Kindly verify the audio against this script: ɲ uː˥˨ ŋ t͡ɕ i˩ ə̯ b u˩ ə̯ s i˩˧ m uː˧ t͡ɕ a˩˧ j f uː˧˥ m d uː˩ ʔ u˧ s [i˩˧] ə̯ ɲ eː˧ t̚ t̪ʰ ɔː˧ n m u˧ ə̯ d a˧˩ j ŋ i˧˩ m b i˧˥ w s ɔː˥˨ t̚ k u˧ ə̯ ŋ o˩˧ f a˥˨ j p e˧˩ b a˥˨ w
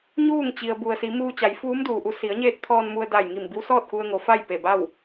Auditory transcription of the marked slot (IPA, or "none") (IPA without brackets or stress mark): i˩˧